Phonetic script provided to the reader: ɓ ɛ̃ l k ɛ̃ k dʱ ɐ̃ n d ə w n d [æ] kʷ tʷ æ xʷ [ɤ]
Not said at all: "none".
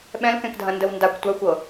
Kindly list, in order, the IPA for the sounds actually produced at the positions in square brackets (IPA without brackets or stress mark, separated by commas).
a, ɤ